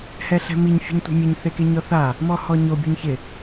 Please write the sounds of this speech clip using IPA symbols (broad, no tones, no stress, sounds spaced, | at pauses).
h ɛ ɬ ɛ̤ m i ɲ fʲ ɛ̤ ɲ tʷ ɛ̤ mʲ e ɲ θ e k e ɲ ɔ θ a | m ɔ h ɔ ɲ o bʲ u ɲ ç ɪ